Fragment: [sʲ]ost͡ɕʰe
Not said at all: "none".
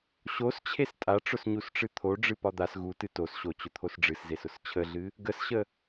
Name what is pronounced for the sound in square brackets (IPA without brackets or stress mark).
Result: ɕ